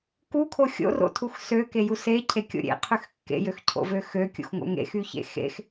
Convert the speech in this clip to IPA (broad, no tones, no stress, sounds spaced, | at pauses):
k u kʰ o xʲ o̰ r o̰ tʰ u x s ø k e j u s e cʰ e kʲ o̰ ɾʲ ḛ qʰ ø x kː ḛ j ø x cʰ o̰ v ø x ø kʲ ṵ x ŋ o̰ ŋ ḛ x y ç ḛ x ḛ x